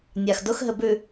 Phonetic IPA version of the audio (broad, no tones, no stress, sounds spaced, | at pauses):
nʲ a x d ʊ x ɦ ɘ b ʉ